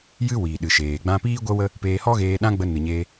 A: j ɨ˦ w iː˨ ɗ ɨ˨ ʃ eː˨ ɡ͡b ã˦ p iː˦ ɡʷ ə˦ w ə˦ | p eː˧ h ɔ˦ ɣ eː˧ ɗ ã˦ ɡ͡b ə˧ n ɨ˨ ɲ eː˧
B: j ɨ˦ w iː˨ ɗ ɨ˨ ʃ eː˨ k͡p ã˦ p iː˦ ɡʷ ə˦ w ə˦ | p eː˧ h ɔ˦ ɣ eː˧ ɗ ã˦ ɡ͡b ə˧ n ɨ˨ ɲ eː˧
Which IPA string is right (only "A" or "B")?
A